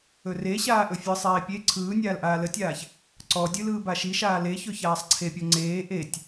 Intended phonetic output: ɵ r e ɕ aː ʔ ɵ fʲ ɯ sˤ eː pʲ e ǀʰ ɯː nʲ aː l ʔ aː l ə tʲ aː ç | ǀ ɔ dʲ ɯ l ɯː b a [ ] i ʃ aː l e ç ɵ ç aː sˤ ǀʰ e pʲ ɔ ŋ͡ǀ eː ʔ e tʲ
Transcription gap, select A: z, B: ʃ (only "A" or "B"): B